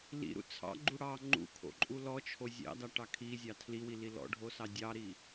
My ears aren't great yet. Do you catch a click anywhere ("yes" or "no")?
yes